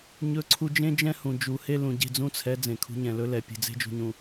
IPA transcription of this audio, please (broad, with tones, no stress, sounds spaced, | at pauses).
ɲ ɵ˦ ǀʰ u˦ d͡ʒ ẽ˦ d͡ʒ ɛ̃˦ h ũ˨ d͡ʒ u˨ h e˦ l ũ˨ ɟ e̤˦˨ d͡z ũ˦ t͡sʰ ɛ˨˦ d͡z ẽ˨ kʰ ṳ˨˦ ɲ ɛ̃˨ l ɵ˦ l ɛ˨ pʲ e̤˨ d͡z e̤˦ d͡ʒ ṳ˨ ɲ ũ˨